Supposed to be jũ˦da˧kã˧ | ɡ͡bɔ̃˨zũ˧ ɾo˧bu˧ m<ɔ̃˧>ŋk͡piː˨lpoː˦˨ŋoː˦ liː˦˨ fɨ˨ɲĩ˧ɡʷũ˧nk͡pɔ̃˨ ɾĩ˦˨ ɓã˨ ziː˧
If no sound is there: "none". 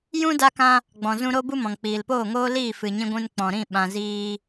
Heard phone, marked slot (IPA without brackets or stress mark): ɔ̃˨